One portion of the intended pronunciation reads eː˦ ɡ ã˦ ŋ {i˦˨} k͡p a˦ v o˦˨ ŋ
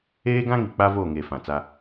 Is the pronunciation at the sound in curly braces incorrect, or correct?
incorrect